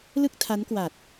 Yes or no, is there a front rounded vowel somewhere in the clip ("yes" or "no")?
no